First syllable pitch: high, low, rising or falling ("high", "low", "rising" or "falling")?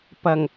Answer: low